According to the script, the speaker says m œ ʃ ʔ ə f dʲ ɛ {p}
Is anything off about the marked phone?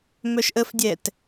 yes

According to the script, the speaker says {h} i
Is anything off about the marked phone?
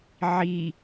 yes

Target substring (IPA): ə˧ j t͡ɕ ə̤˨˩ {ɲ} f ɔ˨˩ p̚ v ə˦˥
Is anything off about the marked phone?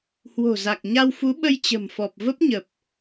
yes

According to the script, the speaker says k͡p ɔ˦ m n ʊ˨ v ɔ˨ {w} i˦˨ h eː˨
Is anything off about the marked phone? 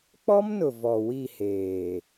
no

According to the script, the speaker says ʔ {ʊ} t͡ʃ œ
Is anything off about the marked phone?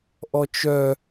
yes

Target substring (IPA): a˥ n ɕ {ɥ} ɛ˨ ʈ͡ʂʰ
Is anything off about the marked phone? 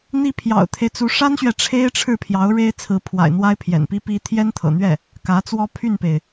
no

